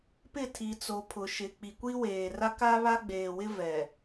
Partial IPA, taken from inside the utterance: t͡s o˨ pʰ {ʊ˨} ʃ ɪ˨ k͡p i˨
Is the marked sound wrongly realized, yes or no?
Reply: no